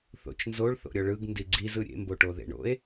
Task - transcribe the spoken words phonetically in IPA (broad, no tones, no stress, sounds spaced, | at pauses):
θ o̰ t͡ʃ n z o ɭ θ o̰ ɾʲ ɔ ɭ ɯ ɡ n d i ɡ͡ǀ i z ɯ ɾʲ ḛ m b o ʈ o ð ḛ ɳ o̰ e̯